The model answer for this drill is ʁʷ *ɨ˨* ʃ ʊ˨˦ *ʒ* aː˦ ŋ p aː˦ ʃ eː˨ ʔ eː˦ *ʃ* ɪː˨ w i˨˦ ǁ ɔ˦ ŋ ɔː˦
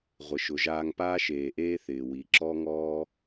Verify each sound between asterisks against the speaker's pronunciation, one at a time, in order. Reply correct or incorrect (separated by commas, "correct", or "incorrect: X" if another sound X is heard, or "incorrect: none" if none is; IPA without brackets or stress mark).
incorrect: ɪ˨, correct, incorrect: θ